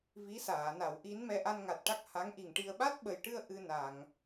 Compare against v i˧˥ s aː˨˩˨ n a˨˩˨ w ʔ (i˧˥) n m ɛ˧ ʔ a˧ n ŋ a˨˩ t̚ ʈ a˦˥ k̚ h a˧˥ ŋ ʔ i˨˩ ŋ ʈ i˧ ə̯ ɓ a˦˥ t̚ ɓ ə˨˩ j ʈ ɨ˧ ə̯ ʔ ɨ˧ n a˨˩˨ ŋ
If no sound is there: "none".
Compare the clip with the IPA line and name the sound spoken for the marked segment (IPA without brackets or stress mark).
i˧˥